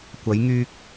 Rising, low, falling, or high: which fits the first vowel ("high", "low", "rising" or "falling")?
rising